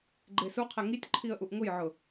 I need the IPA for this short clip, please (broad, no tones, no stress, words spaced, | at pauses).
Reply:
ɡ͡ǃesuqʰe ŋitʲǃʰiə̯ ʔuʔŋʊjʕʊ